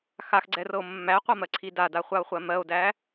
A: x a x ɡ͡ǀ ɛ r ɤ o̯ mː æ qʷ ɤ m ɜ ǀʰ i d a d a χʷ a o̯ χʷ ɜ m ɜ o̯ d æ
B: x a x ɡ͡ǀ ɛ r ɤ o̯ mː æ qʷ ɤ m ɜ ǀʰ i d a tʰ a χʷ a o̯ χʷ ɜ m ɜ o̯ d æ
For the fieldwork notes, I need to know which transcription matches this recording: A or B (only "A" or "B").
A